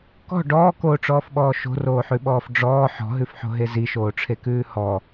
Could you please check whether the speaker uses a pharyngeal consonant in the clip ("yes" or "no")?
yes